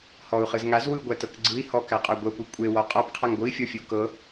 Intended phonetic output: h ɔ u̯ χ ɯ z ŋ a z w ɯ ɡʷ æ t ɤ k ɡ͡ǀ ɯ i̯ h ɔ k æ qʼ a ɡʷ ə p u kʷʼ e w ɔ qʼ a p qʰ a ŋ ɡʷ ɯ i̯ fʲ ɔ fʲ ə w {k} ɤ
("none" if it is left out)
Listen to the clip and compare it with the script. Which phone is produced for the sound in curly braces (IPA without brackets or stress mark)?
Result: k